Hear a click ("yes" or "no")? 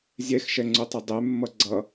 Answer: yes